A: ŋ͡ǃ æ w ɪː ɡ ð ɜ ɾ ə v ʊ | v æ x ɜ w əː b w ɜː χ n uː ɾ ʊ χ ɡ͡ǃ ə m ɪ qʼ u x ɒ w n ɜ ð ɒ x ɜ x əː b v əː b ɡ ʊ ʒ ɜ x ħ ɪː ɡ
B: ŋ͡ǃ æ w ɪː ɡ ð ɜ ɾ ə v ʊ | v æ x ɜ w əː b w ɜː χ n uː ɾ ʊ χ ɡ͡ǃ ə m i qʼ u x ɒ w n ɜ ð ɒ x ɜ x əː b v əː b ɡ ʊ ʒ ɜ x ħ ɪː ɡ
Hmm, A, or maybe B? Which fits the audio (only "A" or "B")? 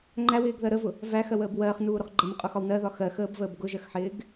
A